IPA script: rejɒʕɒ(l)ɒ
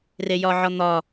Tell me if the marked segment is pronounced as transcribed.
no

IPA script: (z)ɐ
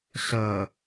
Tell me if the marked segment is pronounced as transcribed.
no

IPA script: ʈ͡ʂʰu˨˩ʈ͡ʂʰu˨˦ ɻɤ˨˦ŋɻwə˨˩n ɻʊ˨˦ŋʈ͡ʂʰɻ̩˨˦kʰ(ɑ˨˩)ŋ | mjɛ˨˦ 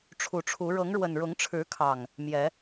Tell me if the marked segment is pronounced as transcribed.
yes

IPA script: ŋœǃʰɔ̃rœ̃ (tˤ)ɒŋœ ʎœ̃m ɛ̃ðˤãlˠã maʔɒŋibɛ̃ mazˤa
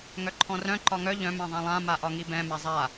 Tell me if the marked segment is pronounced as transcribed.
no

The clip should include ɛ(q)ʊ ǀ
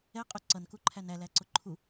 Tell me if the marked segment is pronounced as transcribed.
no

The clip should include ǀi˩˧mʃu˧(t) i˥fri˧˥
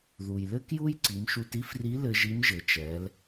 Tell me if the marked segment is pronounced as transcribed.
yes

